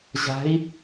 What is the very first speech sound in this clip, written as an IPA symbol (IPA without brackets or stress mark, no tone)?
ʑ